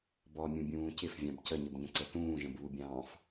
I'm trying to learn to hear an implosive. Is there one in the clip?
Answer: no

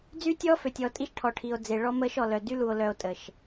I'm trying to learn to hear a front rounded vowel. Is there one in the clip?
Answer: yes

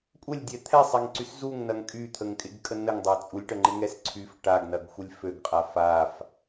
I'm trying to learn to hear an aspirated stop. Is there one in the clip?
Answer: yes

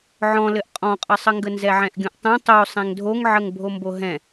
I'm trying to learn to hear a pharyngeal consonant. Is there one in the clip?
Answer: yes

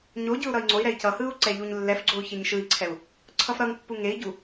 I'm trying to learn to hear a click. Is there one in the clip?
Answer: yes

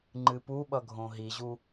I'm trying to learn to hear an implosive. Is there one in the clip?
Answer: yes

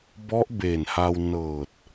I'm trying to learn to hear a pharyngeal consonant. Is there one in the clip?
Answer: no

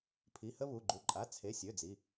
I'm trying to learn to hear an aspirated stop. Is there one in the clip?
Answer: yes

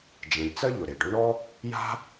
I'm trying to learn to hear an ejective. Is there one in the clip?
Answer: no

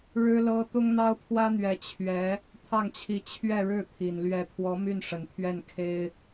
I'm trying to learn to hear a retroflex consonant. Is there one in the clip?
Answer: yes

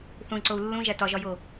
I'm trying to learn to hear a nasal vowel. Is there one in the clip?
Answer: yes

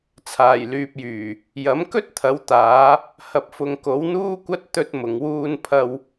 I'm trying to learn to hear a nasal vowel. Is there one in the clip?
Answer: no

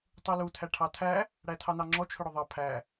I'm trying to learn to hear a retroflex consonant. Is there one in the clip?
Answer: yes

